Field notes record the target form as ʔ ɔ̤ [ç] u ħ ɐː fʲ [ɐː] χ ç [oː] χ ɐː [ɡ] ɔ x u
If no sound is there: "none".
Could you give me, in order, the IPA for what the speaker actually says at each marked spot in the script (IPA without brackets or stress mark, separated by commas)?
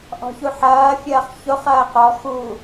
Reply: ç, ɐː, o, q